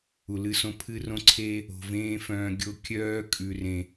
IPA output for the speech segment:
u˨ l ɨ˧ s õ˧ pʰ ɨ˧ r õ˧ ǀʰ eː˧ | o̤˨ v ẽː˦ f œ̃ː˧ ɡʲ o˧ kʲ œː˦ kʼ ʉ˨ r ẽ˨

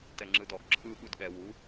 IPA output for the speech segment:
t ɛ ŋ͡ǁ ɯ d ɔ ɡ ǁʰ ɯ ɠ u d ɠ ɛ w u

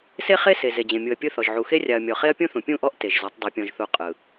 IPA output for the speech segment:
s e˦ χ e˦ s e˨ z e˨ d͡ʑ ẽ˨ mʲ u˨ ɐ̯ pʲ ɯ˦ θ ɔ˨ ʒ ʕ u˨ x e˦ rʲ a˨ ɐ̯ mʲ ɔ˨ χ e˦ ɐ̯ pʲ ũ˦ θ ũ˨ pʲ ũ˦˨ ʔ ɔ˦ ʔ t e˨ ʒ z ɔ˨˦ tˤ dˤ e˨ pʲ ɔ̃˨ ʒ θ u˨ qʼ ɯ˨

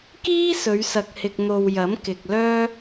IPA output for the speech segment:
k iː˥ s ɵ˨˧ ɥ s ɐ˨ k̚ h ɪ˨ k̚ n̪ o˨ w j ɐ˨˥ m k ɪ˨ k̚ l œː˥

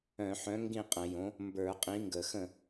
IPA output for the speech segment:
œ̃˧˩˧ ħ œ̃˨˥ ŋ ɡ ĩ˥˩ qʼ ə̃˧˩˧ j õ˨˥ | m b ə˞˧˩˧ qʼ ĩ˨˥ ŋ ɡ ə˧˩˧ x ə̃˥˩

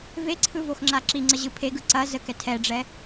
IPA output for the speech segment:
v e ǀʰ ɯ v o x ŋ͡ǁ a ǁ i ŋ͡ǀ ə ʑ ɯ pʰ e ɡ ɯ ǀ ɐ z ə k ɛ tʰ ɛ ɖ͡ʐ ɛ

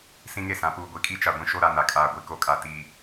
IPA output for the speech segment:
s ĩ˦ ŋ e˦˨ s ã˨˦ p uː˨ ɡʷ i˨ kʼ i˦ t͡ʃ a˨ ɡʷ ĩ˦ ʃ o˦ ɾ a˨ n a˨ kʼ aː˨ ɡʷ i˨ k o˨ kʼ a˨ t i˨

